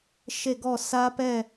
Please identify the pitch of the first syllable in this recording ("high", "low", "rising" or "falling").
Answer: falling